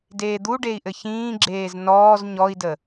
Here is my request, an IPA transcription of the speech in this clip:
d eː d̪ u ɖ e i̯ ʔ ɘ ç ĩː ɡ͡ǁ eː z n ɔː z ɲ ɔ i̯ d ə

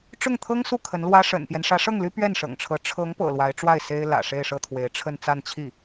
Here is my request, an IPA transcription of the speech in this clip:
ʈ͡ʂ ʊ˥˩ ŋ t̪ʰ ɤ˥ ŋ s u˥˩ kʰ ə˧˥ n l w ä˥ ʂ ə̰˨˩ n p j ɛ˦ n ʂ ä˧˥ ʂ ɤ˥˩ ŋ l y˥ p ɥ ɛ˥˩ n ʂ ɤ̰˨˩ ŋ ʈ͡ʂʰ ɤ˧˥ ʈ͡ʂʰ ɤ˧˥ ŋ p ɤ̰˨˩ l w a˧˥ ɪ̯ ʈ͡ʂ w a˥˩ ɪ̯ s e˥ ɪ̯ l ä̰˨˩ ʂ e˥˧ ɪ̯ ʂ ɤ˥˩ t̪ʰ w e˧˥ ɪ̯ ʈ͡ʂʰ ə˥˧ n t͡s a˥˧ n t͡ɕʰ i˥˩

